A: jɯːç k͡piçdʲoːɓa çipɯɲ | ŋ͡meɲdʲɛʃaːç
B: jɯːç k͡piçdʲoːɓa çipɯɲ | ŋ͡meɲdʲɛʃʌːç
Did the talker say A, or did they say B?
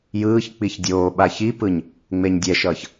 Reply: B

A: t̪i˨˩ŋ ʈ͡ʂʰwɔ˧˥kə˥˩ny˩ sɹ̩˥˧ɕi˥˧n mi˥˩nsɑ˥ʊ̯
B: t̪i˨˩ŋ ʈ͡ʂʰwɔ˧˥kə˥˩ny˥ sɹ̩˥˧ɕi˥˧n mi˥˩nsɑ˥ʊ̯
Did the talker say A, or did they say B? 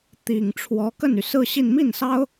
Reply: A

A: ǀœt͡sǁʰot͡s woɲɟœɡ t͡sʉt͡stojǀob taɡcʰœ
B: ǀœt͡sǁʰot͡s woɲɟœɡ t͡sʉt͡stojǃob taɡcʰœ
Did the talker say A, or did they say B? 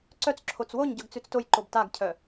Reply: B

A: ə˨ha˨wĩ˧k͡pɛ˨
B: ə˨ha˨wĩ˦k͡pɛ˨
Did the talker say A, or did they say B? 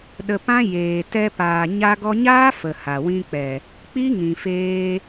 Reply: A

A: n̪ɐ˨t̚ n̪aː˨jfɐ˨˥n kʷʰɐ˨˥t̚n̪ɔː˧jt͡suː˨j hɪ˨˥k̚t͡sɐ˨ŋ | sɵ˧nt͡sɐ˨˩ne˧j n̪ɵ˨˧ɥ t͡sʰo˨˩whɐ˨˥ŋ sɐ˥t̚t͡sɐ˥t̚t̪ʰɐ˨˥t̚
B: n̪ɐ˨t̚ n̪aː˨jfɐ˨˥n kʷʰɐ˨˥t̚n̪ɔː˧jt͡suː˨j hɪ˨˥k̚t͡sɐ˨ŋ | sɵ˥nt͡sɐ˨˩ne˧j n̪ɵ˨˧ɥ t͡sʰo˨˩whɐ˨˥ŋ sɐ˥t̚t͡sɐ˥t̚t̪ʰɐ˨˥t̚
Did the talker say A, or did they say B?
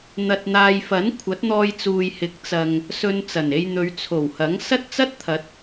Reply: A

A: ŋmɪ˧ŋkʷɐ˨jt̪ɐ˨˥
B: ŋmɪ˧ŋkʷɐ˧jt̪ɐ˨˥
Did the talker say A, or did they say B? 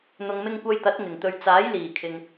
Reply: B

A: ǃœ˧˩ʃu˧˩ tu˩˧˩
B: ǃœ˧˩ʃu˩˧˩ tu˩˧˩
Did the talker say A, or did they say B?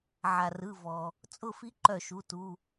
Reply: B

